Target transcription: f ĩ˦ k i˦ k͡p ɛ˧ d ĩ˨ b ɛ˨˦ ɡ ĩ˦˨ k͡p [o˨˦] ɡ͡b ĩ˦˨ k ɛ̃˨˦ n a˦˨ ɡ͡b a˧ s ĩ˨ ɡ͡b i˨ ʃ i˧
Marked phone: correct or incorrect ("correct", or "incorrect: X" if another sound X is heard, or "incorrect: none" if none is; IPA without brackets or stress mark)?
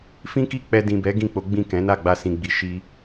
correct